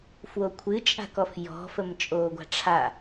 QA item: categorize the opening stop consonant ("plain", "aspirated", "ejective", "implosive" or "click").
aspirated